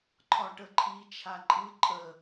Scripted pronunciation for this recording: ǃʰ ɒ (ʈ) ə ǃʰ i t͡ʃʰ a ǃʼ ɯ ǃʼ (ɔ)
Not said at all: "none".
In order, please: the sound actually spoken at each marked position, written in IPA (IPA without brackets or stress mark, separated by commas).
ʈ, ə